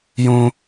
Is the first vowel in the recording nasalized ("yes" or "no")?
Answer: yes